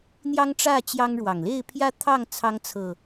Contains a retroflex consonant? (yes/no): yes